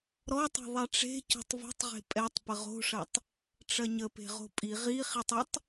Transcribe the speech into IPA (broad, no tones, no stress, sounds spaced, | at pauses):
ɾ ɔ tˤ e̤ ðˤ ɛ ʈ͡ʂ e̤ c o̤ tˤ v e̤ tˤ ʁ e̤ pʼ ɛ tˤ p ə ʁ o̤ ʂ ɐ tˤ | ʈ͡ʂ ɐ ɲ ə p e̤ ʁ o̤ pʼ i ʁ i χ i tˤ ə tˤ